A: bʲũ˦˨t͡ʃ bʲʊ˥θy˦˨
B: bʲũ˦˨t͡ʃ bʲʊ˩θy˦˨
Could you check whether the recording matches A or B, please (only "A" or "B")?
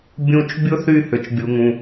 A